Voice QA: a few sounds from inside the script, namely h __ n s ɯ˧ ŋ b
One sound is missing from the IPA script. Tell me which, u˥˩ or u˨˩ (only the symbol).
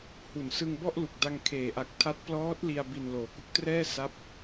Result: u˨˩